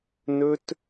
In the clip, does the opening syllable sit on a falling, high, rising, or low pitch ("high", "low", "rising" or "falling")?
high